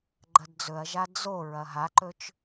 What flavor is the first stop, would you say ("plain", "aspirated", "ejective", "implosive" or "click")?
click